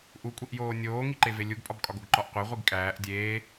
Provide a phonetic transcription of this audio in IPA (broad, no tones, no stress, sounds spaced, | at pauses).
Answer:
ʔ u kʷʼ i ʔ j oː nʲ oː ŋ i ǃ e v e lʲ u ɡ pʼ ɒ b kʼ ɒ ɡ o ɡ ǃ ɒ ʔ qʷ e ʁʷ i ɡ kʼ æː ʔ dʲ eː